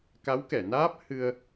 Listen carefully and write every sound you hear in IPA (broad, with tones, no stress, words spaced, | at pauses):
ka˧˥wkɛ˨˩˨ naː˦˥p̚ hɨ˧ə̯